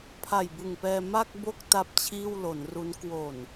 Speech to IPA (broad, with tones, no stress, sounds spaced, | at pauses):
pʰ a˨˩ j b ɯ˨˩ ŋ p ɛː˧ m a˥˩ k̚ b o˥˩ k̚ t a˥˩ p̚ t͡ɕʰ iː˥˩ w l o˩˦ n r u˦˥ n k w o˨˩ n